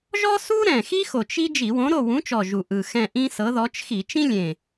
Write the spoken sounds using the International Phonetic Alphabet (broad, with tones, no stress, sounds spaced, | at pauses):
ʒ ɔ˥ s u˥ ɾ ɛ̃˨˩ x i˥ x o˨˩ t͡ʃ i˥ d͡ʒ i˧˩˧ w õ˨˥ ɾ o˦˨ w ũ˨˥ t͡ʃ ɔ˨˩ ʒ u˨˩ ʔ ɯ˨˩ x ɛ̃˦˨ ʔ ĩ˥ s ɤ˨˥ ð ɔ˨˥ t͡ʃ x i˧˩˧ t͡ʃ ĩ˥ lʲ ẽ˨˩